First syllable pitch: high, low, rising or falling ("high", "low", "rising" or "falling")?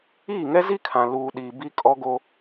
falling